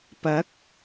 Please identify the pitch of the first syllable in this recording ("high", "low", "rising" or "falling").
rising